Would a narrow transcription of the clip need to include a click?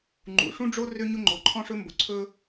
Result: yes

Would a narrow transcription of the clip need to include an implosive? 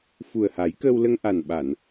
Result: yes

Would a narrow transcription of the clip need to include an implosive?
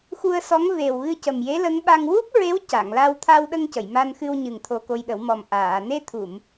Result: yes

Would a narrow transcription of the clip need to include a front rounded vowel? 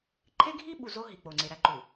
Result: no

